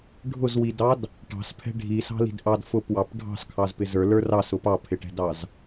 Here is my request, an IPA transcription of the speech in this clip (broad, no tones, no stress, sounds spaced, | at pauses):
ɖʱ ʊ z w i d ɑ d | ʈ ɑ̤ s pʰ ɛ̤ ɖʱ i s ɑ̤ l i̤ d ʔ ɑ d f ʊ p w ɑ p ɖʱ ɑ̤ s kʰ ɑ z p ɪ z ə˞ l ə˞ r ɑ s ʊ p ɑ pʰ ɪ ʈ ɛ̤ d ɑ z